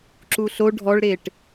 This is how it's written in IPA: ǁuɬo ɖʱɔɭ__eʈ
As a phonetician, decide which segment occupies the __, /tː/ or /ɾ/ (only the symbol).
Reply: ɾ